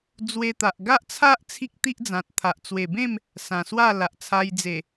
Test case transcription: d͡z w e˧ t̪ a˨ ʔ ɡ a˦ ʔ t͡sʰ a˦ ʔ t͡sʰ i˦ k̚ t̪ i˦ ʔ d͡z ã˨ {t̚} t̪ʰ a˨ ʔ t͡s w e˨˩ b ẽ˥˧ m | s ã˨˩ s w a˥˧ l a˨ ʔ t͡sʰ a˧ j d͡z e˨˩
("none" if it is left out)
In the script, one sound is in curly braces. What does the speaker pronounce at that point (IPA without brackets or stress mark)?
t̚